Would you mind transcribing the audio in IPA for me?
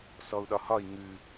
sɔu̯ɗɒhɒi̯ ŋʉ

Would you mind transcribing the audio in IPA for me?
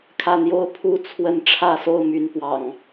kʰä˥˨ n̪jo˦ʊ̯pʰu˥˨ t͡sʰwə˥˨n ʈ͡ʂʰä˥˨so˥˨ʊ̯my˨˦n pwɑ̰˨˩ŋ

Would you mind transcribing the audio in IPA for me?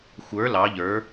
xʷə˞ lɑ ʎə˞

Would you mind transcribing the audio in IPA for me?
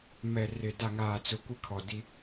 mɛ˨ rɪ˨ da˨ŋaː˨t͡sʊ˨ kʷɪ˦kʰɔ˨di˦

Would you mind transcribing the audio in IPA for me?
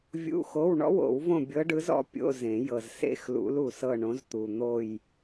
vʲṵ˧˥˧xo˧˥˧w ɳɔ̰˧˥˧wo̰˨˩˦wvõ˦˨ bʲɤ˧˥ɖɯ˧˥z ɔ̰˧˥pʲo̰˧˥˧ zẽ˨˩˦ jɤ˨zsḛ˧˥˧xlṵ˧˥l u˨sɤ˦˨ɳõ˧˥zt̪u˨ n̪o˦˨j

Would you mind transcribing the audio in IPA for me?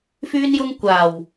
fyː˥njʊ˥ŋ kʷaː˨˩w

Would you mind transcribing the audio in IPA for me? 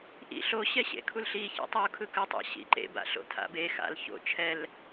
ʔḭ ɬo ɕɛɕḛkʰulɬi çḭtˤu kʰɯkɯ tˤa̰ɕḭǃḛ ba̰ɬo̰tʰa̰be xa̰l ço̰ t͡ʃʰɛl

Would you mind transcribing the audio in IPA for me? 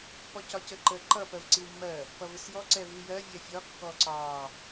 pɔcɒcəǃə ǃʌ pɜvǀiwmːɜ | pʌvɪsjɔ ǀɛvijɜ vʲɛfʲɒ kːɔǀɑ

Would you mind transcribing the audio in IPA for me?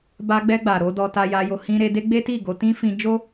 ba˧ɡ͡bɛ˧ɡ͡ba˨ ɾo˨˦dɔ˧ ta˧ja˧jo˧ hĩ˧ɾe˧de˦ ɡ͡be˦ti˦˨ ɡo˨˦tĩ˦fĩ˧ d͡ʒo˦

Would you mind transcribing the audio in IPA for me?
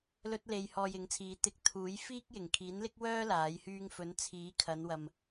lɵ˧t̚le˨j hɔː˧jɪ˨˥ŋt͡sʰiː˨˧ t̪ɪ˧k̚t̪ʰuː˨˥j fiː˥k̚jɪ˨˩ŋ kʰiː˨˥nlɪ˥k̚wœː˥ laː˨˥jhyː˥ŋ fɵ˨˥n t͡sʰiː˨˥kʰɐ˨˧nwɐ˨m

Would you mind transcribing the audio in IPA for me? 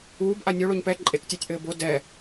uːbʔa nʲo ɭoɲpɛ ǃʼektʲatʲʔɘː bo dɛ

